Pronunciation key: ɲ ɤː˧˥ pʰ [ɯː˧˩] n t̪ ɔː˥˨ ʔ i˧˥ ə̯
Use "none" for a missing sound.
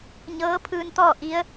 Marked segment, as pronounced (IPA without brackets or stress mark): ɯː˧